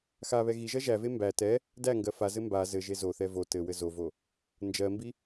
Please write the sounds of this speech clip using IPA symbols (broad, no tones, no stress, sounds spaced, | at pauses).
x a β ɛ ɣ i ʒ ɜ ʒ æ v e m b æ t ɛ | d æ ŋ ɡ ɜ f a z ɘ m b a z ɘ ʒ e z o θ ɛ v o t ɘ w ɘ z o v o | n d͡ʒ ɜ m b i